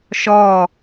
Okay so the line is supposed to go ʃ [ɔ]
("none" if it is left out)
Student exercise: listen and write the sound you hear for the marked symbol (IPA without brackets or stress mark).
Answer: ɔ